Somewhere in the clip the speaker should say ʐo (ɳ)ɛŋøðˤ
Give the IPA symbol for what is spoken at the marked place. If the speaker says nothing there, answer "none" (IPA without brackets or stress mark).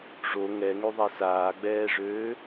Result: ŋ